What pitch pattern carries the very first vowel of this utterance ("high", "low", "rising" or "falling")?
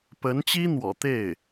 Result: rising